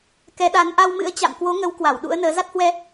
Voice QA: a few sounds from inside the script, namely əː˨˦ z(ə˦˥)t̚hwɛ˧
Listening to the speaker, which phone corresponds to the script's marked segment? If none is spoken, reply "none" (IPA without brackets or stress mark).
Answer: a˦˥